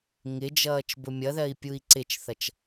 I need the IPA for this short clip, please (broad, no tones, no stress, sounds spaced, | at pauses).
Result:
ŋ ɪ d͡ʒ ʌː t͡ʃ b ʊ mʲ ʌ ð ɜ i̯ pʲ u i̯ ǀ ɪ t͡ʃ θ ʌ t͡ʃ